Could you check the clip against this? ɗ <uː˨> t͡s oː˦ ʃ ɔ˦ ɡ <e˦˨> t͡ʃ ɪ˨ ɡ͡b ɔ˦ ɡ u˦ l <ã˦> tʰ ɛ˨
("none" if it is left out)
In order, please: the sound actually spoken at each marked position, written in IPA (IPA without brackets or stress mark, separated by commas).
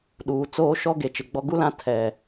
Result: uː˨, e˨, ã˦